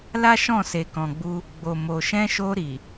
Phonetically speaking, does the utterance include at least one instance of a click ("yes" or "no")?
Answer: no